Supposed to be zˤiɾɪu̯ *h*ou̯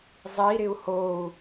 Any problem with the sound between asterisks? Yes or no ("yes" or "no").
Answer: no